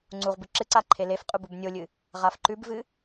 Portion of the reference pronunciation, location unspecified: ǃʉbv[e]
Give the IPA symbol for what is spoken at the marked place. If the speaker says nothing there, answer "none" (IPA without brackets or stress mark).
ɨ